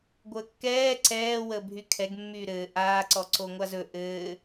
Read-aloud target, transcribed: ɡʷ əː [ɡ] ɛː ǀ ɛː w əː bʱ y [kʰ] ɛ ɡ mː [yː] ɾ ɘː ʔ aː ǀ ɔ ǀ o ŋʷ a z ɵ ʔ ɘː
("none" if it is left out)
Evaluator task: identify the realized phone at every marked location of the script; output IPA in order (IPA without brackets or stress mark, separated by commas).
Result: kː, kʰ, yː